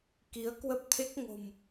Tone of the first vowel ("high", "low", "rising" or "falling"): rising